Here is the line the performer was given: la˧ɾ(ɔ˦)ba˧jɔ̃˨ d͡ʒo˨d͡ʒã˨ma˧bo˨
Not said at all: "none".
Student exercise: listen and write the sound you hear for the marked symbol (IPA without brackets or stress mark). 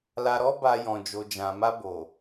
ɔ˦